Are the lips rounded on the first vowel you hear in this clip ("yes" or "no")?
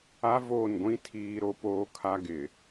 no